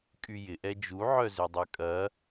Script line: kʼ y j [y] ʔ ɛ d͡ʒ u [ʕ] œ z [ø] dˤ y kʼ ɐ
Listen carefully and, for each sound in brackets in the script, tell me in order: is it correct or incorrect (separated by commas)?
incorrect, correct, correct